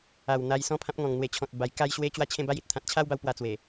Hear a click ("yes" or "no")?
no